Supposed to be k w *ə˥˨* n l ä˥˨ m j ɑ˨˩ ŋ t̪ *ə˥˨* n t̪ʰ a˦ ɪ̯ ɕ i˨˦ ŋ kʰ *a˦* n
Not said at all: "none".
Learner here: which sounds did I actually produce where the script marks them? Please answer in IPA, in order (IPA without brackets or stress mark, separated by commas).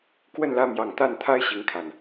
ə˥˨, a˥˨, a˨˩